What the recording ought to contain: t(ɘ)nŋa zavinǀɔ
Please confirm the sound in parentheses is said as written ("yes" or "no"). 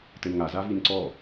yes